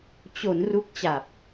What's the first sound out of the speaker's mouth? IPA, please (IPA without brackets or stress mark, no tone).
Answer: t͡ɕ